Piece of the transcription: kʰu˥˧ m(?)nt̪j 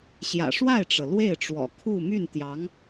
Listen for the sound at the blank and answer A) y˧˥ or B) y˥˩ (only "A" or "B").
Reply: B